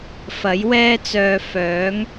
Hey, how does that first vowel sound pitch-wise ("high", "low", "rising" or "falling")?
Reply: rising